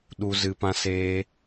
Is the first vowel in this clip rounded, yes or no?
yes